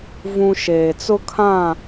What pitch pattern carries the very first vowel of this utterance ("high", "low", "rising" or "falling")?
high